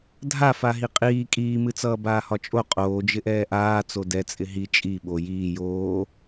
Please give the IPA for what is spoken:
dʱ a f a ɦ i qʼ iː kʼ iː m ɨ t͡s ʌː b aː h ɒ t͡ʃʼ o qʼ oː d͡ʒ ɪ ʔ ɛː ʔ aː t͡s o d ɛ t͡sʼ ɪ ɦ i t͡ʃʼ i ɓ o j iː j oː

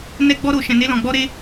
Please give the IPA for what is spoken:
n ɛ˦ ɡ͡b ɔ˦ ɾ o˧ ʃ ɛ̃˧ n e˦ l ɔ̃˧ ɡ͡b ɔ˧ ɾ e˧

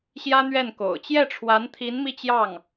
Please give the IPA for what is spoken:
ɕ j ä˥ n̪ ɥ ɛ˥˩ n k o̰˨˩ ʊ̯ t͡ɕ j ɛ˥˩ ʈ͡ʂʰ w a˧˥ n t̪ʰ i˧˥ n m i˥˧ t͡ɕ j ɑ˥˩ ŋ

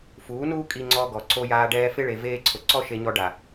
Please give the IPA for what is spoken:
f uː˨˦ n uː˦ kʼ i˧ ŋ͡ǀ ɔ˧ ɡ ɔ˨ ǀ o˧ j aː˧ ɖ ɛː˧ f ɪ˧ ɭ e˨ v eː˧ ǀʰ ʊ˨ ǀ ɔ˦ ʃ e˧ ɲ ɔ˧ ɖ a˨

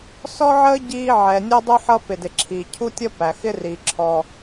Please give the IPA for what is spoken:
s ɔ˥ ʕ əː˥ ɟ iː˥ ʕ ɛ˩ nʲ ɔ˥ dˤ u˥ ħ ʌ˥ p ɪ˩ d ɪ˩ ǁʰ iː˩ cʰ u˥ tʲ ʌ˥ p æ˩ x ɪ˥ r i˩ ǁʰ ɔ˩

